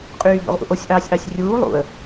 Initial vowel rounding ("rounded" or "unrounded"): rounded